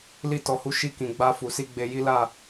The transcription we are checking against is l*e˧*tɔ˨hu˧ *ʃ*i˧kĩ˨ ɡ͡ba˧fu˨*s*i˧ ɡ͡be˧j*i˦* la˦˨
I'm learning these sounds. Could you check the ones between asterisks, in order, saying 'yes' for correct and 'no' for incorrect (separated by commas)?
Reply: no, yes, yes, yes